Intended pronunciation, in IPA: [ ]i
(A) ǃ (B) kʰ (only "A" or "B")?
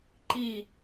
A